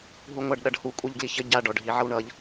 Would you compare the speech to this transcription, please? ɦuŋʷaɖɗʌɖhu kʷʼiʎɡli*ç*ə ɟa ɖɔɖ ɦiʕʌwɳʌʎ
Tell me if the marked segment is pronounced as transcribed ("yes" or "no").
yes